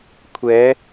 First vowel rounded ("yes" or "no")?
no